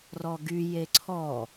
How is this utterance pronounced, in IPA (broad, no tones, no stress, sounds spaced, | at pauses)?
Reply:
r ɔ ɡ y j e ǀʰ ɔ